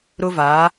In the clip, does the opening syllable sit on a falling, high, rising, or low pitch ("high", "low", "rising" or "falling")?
high